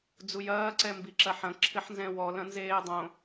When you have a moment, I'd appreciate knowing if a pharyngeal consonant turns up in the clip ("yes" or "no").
yes